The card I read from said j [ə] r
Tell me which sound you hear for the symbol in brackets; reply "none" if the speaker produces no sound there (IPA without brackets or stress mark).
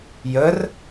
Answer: ə